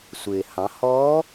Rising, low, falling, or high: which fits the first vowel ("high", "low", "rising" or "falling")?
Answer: low